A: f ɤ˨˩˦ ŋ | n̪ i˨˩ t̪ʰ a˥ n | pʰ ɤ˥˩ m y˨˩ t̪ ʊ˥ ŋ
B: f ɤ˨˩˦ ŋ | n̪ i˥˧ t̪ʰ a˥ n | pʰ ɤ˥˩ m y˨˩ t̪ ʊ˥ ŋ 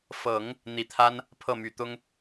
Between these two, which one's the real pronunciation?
A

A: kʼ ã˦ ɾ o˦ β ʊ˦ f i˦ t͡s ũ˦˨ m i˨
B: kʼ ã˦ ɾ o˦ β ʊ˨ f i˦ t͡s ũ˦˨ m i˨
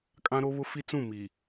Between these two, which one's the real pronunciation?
A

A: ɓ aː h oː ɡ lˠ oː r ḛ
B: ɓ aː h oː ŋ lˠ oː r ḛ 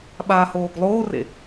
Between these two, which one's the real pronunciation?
A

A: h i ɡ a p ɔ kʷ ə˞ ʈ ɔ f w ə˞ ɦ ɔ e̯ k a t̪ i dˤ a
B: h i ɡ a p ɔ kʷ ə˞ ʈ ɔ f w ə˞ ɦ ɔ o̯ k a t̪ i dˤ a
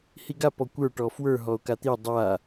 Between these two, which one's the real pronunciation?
B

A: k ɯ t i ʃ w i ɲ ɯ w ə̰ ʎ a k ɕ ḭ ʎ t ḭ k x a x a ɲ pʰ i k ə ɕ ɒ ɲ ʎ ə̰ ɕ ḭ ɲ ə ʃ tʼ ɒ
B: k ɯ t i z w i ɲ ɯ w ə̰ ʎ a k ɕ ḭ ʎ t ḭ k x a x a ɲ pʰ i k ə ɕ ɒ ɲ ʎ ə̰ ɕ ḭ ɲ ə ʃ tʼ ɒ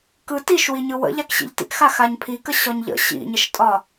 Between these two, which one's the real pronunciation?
A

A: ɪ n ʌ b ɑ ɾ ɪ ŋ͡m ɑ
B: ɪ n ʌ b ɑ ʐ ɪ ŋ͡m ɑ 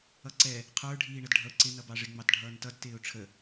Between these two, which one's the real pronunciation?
B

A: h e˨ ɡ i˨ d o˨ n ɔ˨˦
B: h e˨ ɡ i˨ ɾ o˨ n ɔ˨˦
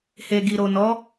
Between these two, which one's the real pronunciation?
B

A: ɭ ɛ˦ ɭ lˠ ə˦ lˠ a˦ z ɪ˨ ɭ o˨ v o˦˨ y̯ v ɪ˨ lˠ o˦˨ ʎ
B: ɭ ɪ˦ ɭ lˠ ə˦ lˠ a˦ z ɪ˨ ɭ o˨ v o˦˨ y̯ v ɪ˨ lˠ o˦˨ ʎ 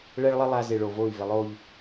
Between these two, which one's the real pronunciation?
A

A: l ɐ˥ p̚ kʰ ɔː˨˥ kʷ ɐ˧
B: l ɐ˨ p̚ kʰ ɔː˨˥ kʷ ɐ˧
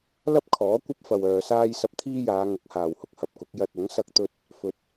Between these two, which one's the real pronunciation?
A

